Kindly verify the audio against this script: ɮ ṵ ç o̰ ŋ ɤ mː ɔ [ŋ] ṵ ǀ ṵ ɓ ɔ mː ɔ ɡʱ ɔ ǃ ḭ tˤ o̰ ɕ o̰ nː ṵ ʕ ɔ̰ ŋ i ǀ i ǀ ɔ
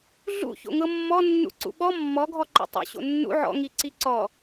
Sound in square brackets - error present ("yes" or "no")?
yes